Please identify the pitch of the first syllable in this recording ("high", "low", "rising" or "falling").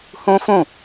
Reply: high